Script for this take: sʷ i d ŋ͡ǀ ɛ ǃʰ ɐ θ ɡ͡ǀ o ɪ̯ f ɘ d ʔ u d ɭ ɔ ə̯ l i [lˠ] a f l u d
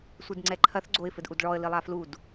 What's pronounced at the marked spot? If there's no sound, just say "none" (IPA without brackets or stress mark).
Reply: lˠ